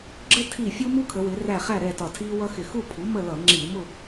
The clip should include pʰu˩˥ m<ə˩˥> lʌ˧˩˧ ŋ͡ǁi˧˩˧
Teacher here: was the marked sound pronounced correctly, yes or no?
no